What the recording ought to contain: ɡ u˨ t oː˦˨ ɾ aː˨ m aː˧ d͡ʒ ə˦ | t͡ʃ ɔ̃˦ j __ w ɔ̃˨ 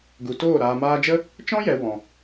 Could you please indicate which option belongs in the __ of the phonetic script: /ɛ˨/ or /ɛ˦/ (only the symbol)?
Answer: ɛ˨